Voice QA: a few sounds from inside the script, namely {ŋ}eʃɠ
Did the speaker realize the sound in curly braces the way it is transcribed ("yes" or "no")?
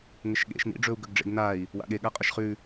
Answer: yes